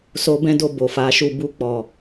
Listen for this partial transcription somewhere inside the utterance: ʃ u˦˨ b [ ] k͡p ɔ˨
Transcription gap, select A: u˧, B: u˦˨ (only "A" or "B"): A